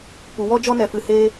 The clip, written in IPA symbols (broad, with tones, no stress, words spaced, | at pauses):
pu˨wɔ˦d͡ʒɔ˦ nɛ˧fɨ˧ he˦